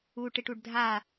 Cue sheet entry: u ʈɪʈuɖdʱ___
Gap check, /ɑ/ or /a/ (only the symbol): a